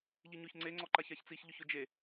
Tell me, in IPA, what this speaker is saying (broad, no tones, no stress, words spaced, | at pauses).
ʎiɲʊç ŋ͡ǀeŋ͡ǀɔǃaç açt͡siçʎʊç ʊd͡ʒe